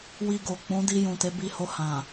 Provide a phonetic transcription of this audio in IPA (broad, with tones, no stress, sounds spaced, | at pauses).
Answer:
w i˧ ɡ o˨ k͡p ũ˨˦ d i˧ j ũ˨ t e˨˦ b i˧ h o˧ h ã˨